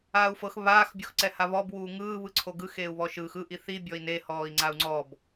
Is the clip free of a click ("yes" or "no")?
no